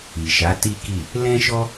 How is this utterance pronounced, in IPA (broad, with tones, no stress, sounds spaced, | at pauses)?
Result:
i˨ ʃ a˨˦ t i˦ k i˦˨ | l ɛ̃˦ ʃ ɔ˦